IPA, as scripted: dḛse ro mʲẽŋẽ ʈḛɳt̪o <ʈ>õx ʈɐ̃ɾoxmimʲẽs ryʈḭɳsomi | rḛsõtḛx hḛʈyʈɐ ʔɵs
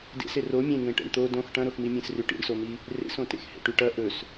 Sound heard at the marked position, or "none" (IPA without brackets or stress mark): d